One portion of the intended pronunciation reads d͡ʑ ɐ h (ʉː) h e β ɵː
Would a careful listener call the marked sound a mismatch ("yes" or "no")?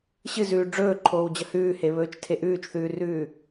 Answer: no